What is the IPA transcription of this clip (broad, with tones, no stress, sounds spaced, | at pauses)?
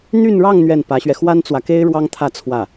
n̪ y˥˧ n ɻ ɑ˥˧ ŋ n̪ ɥ ɛ˥˩ n p ä˧˥ ɕ ɥ ɛ˧ x w a˥ n t͡s w ä˨ k e˥ ɪ̯ ɻ w ɑ˥ ŋ t̪ʰ ä˥˧ t͡sʰ w ä˥˩